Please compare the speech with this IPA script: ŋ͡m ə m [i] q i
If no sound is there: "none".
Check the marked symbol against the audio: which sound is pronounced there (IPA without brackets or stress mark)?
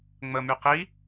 y